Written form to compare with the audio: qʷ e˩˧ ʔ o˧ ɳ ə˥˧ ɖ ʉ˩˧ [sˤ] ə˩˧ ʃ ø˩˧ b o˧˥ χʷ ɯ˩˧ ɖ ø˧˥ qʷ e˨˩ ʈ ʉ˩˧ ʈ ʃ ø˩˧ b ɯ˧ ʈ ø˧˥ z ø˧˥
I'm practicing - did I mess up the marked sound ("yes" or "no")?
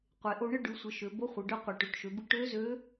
yes